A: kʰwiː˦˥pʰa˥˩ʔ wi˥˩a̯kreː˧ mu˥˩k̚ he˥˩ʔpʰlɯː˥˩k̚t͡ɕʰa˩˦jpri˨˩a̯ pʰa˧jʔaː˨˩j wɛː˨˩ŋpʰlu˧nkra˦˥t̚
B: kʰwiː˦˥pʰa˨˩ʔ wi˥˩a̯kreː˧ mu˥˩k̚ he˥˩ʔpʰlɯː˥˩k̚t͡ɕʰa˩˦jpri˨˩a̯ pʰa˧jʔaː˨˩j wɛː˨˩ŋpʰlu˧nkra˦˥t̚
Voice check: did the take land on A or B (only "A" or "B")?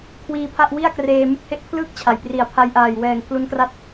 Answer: A